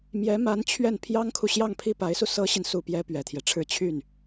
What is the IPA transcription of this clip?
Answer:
m j ɛ˧˥ m a˧˥ n t͡ɕʰ ɥ ɛ˥˩ n pʰ j ɑ˥ ŋ kʰ u˨ ɕ j ɑ˥˧ ŋ pʰ i˥˩ p a˧˥ ɪ̯ s u˧ s ɤ˥ ɕ i˨ n s u˥˩ p j ɛ˥ p ɥ ɛ˨˩ t̪ʰ j ɛ˦ ʈ͡ʂʰ ɻ̩˥˧ t͡ɕʰ y˥˩ n

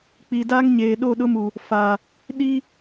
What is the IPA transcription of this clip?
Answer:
k͡p i˨ d a˦ ŋ ɲ eː˨ ɗ o˦˨ ɗ ʊ˦ m u˨ | f a˨ | ɗ i˦

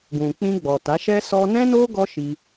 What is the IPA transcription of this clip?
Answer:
ɡ ũ˨ k͡p ĩ˧ ɡ͡b ɔ˨ t a˨˦ ʃ ɛ˦ s ɔ˧ n ɛ̃˦ n o˦ ɡ ɔ˦ ʃ i˧

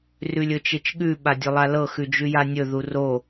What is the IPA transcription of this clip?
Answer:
r ʉ lʲ ɵ t͡ʃ e t͡ʃ ɠ ʉ ɓ a dʲ ɵ lˠ a l ɤ x ʉ d͡ʒ ʉ j a nʲ ɵ ð u r o

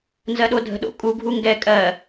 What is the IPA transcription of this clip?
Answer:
n z ɜ ɗ o dʱ ə̤ ɗ o̰ kʼ u ɡʱ u ŋ ɡ ɛ kʼ ɜ

